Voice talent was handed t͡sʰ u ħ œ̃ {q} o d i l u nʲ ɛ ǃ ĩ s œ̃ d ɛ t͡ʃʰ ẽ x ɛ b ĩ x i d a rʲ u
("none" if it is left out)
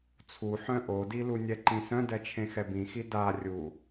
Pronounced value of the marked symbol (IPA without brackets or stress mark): ʔ